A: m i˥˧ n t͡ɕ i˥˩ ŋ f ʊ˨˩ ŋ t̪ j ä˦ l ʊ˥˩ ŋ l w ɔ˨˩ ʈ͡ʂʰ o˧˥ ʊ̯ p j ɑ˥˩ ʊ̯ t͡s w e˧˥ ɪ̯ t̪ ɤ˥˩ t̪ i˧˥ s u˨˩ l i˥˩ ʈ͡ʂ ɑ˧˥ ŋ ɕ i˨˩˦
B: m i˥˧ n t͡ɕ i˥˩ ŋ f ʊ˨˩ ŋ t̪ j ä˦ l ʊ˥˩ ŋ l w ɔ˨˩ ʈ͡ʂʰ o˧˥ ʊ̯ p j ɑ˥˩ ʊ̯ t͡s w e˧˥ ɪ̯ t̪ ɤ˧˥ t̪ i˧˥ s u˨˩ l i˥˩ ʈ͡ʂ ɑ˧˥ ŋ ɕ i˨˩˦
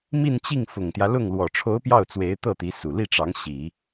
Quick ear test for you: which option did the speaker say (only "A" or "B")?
A